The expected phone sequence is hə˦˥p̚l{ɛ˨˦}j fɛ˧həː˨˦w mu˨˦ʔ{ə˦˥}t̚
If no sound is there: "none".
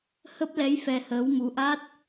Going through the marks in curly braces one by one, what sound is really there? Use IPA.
ɛ˨˦, a˦˥

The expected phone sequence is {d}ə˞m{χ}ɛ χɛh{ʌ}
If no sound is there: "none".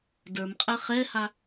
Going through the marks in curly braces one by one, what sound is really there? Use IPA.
d, qʼ, a

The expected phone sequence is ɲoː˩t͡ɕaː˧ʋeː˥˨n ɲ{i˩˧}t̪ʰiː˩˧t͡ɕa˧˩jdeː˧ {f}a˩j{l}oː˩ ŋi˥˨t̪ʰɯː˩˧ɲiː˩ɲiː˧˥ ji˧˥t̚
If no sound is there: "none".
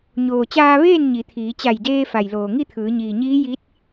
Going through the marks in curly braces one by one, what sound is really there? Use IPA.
i˩˧, f, l

